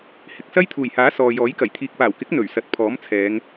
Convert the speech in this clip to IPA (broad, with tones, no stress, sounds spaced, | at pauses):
h ɪ˨ k̚ s ɐ˥ j t̪ʰ uː˨˩ j h aː˨˥ s ɔː˨ j ɔː˨˥ j k ɐ˨˩ j t̪ʰ iː˨ k̚ p aː˨˩ w k ɪ˨˥ k̚ n̪ ɵ˨˩ ɥ s ɐ˨ t̚ pʰ ɔː˨˥ m t͡sʰ ɛː˨˧ ŋ